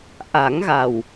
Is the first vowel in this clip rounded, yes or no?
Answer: no